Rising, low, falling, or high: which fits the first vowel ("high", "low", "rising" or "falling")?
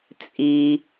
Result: low